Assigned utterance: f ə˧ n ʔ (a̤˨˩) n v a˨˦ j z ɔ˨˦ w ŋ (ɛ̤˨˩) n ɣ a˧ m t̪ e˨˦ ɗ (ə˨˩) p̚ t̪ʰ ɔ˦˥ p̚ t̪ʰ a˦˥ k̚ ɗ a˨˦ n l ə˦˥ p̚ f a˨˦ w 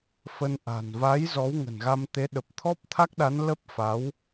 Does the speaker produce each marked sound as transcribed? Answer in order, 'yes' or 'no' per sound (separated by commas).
yes, no, yes